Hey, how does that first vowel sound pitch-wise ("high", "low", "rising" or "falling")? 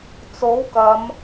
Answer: rising